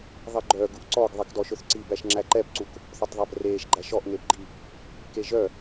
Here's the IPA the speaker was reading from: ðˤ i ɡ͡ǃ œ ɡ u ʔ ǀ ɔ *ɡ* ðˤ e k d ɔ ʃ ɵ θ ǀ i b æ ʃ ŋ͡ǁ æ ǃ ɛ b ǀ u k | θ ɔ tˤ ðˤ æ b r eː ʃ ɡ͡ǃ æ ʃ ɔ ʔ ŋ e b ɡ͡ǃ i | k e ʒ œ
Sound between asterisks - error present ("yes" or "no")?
no